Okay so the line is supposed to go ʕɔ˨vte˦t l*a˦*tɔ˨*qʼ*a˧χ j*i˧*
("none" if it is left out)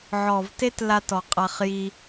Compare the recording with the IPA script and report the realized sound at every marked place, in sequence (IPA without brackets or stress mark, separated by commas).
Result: a˦, qʼ, i˧